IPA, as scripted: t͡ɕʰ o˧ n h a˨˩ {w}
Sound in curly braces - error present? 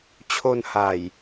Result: yes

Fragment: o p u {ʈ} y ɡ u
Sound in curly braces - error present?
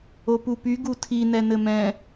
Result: yes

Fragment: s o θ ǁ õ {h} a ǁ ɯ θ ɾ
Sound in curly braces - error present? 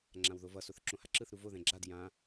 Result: no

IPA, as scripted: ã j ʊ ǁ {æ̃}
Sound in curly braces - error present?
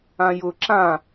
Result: yes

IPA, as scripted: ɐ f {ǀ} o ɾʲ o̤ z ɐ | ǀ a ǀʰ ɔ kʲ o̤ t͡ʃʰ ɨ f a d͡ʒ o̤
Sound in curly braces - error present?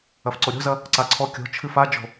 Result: no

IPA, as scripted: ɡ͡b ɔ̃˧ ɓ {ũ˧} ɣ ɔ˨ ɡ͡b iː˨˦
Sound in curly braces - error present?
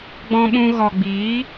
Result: no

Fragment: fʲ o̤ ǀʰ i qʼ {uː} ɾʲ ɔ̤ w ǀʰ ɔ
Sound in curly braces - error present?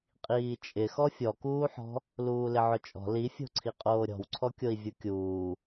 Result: yes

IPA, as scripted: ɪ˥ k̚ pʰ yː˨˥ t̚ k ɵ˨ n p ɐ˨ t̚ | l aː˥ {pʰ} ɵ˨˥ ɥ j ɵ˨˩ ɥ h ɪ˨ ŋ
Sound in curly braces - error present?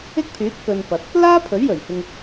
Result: no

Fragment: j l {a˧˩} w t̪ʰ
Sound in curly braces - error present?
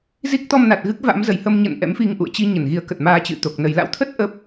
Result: yes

